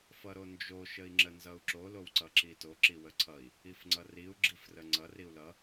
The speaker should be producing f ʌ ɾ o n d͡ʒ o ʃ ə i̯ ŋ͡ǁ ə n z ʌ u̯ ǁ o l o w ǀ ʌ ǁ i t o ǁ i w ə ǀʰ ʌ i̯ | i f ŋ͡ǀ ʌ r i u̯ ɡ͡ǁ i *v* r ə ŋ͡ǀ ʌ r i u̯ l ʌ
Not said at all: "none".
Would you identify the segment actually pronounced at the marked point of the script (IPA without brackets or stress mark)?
f